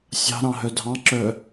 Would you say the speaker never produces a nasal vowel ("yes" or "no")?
no